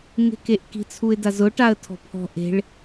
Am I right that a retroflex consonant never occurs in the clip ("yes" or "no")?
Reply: no